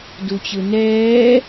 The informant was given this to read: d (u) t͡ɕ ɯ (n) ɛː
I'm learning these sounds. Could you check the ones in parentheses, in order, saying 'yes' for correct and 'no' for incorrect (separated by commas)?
yes, yes